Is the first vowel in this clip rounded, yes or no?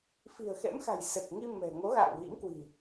no